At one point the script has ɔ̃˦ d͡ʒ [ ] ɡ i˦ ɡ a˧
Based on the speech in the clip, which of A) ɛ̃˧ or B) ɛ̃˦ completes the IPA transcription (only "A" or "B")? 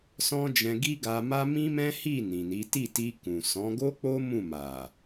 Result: A